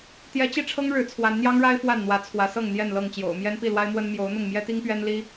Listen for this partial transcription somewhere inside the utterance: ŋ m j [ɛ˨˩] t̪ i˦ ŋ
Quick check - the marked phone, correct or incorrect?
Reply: incorrect